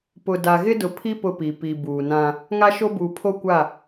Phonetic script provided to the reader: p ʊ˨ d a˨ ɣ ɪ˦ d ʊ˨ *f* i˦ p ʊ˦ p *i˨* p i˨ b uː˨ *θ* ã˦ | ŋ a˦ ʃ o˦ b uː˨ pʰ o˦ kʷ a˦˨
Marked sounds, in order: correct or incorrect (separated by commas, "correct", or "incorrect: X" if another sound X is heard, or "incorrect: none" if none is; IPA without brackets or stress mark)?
incorrect: pʰ, correct, incorrect: n